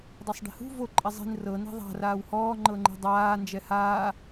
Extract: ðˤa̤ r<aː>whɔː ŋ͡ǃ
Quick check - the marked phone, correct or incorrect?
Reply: correct